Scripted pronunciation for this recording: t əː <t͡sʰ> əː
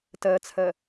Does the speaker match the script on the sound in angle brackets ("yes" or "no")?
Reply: yes